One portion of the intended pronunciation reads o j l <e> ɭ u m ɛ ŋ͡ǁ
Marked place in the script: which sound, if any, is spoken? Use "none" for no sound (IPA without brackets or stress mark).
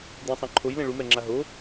ẽ